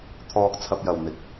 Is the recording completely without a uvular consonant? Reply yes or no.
yes